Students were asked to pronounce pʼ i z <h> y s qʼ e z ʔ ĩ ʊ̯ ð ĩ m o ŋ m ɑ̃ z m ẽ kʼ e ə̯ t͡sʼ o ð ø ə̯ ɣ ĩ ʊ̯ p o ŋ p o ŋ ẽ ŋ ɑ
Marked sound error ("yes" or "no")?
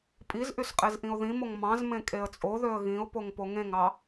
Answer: yes